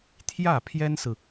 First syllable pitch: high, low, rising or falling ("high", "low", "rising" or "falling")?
falling